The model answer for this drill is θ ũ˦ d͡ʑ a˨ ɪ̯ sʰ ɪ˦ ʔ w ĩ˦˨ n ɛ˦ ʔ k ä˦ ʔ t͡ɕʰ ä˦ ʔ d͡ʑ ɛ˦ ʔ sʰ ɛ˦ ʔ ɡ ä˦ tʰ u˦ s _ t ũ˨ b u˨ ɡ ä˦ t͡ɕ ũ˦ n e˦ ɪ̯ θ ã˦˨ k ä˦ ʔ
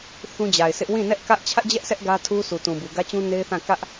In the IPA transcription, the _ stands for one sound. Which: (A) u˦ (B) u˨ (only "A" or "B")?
B